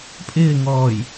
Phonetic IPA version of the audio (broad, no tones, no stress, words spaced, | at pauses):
pʼɪːŋɔːj